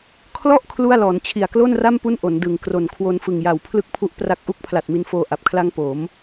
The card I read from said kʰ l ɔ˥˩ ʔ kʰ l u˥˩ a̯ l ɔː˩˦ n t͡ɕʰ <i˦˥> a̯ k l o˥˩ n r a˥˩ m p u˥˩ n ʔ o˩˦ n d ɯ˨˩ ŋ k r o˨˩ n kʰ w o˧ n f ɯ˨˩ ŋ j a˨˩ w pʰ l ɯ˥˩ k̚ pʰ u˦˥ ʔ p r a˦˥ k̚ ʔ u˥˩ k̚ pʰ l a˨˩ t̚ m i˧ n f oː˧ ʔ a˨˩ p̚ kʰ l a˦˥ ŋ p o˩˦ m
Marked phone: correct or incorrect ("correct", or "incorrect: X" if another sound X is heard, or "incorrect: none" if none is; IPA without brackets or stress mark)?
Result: incorrect: i˨˩